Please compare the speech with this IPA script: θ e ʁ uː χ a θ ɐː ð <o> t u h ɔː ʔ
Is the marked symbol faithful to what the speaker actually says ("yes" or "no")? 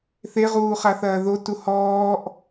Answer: yes